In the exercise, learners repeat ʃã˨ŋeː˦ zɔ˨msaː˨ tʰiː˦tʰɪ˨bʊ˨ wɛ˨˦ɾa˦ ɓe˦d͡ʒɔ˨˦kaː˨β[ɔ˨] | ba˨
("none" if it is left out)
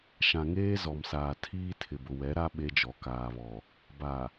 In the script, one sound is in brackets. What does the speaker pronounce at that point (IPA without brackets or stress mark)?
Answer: ɔ˨